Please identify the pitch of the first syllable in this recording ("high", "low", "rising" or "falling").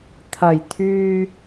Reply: low